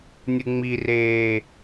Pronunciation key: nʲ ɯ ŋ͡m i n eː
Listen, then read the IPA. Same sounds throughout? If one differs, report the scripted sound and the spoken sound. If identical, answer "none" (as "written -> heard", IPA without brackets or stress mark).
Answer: n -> r